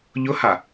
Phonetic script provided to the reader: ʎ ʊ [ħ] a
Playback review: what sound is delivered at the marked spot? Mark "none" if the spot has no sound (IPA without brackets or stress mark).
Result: h